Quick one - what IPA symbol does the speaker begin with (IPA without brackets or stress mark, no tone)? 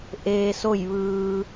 ʔ